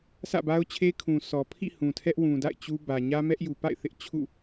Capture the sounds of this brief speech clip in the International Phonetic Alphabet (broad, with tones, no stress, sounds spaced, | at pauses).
s ä̰˦˨ b a˦ ʊ̯ t͡ɕʰ e˦ kʰ ũ˨ sʰ ɔ˨ pʰ ḭ˦˨ h ũ˨ tʰ ɛ˦ ʔ w ũ˨ d a̰˦˨ ɪ̯ t͡ɕ u˦ b ä˨ ɲ ä˦ m ɛ˦ ʔ j u˨ p a̰˦˨ ɪ̯ θ ɪ˦ ʔ t͡ɕʰ ṵ˦˨